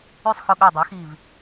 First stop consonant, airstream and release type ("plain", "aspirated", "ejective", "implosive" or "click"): implosive